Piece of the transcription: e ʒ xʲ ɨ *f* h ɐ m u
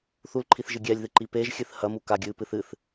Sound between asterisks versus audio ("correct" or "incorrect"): incorrect